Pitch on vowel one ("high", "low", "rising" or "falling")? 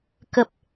low